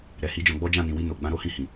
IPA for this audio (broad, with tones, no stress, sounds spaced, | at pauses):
ɾ ɛ˨ h i˨˦ d͡ʒ ɔ̃˧ ɡ͡b ɔ˦ d͡ʒ ã˦˨ n ĩ˨ w i˧ n o˨ ɡ͡b ã˧ ɾ o˦ h ĩ˧ h ĩ˨